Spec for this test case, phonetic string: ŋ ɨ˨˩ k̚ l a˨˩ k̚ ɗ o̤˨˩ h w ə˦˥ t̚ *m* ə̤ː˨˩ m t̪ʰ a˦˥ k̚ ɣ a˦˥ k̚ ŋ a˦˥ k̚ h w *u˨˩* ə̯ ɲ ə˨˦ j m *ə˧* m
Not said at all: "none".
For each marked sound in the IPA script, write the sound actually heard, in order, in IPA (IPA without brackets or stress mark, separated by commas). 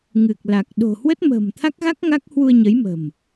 m, u˧, ə̤˨˩